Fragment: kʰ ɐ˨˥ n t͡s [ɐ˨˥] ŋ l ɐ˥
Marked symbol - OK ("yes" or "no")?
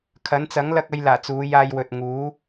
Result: yes